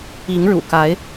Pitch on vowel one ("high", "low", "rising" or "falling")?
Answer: rising